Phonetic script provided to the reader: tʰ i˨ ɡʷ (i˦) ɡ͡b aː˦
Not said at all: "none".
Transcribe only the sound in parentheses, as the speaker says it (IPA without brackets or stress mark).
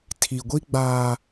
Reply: i˦